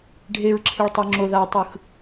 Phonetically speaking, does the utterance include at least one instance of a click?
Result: yes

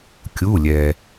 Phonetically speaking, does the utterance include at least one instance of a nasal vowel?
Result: no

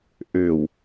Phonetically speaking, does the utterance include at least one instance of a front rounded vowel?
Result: yes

